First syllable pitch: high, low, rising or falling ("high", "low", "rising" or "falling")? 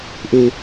high